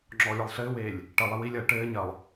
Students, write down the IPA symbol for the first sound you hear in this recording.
ŋ͡ǁ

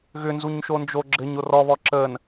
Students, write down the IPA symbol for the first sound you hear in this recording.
ɣ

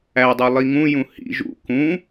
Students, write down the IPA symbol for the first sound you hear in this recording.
æ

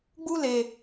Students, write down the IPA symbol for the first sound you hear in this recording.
ɡ͡b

